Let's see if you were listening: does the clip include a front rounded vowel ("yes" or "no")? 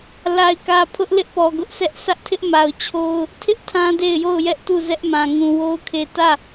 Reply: no